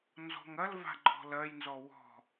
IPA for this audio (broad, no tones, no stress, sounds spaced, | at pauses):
n z ɔ̤ ŋ ɐ l v a̤ ɡ͡ǃ ɔ̤ l ɐ j n z ɔ w ɔ̤